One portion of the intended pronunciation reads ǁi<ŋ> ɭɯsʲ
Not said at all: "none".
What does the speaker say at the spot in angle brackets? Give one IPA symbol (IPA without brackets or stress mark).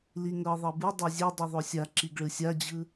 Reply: ɡ